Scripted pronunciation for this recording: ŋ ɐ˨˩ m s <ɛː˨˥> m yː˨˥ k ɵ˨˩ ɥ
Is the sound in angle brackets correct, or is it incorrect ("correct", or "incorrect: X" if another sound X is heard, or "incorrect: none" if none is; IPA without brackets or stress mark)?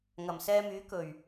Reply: incorrect: ɛː˧